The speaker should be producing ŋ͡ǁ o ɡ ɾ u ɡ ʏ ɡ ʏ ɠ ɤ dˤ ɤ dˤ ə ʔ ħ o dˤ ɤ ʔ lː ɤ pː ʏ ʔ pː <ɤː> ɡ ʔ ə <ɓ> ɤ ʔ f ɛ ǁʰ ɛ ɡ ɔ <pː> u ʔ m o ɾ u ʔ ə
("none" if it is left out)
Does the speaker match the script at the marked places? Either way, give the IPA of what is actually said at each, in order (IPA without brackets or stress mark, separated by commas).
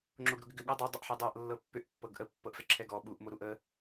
ɤ, pː, ɓ